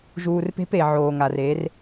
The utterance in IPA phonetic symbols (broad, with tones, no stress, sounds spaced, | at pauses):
ʒ uː˨ r p e̤˦ p e˨ ʕ oː˨ ŋ a˨ r e˨˦ r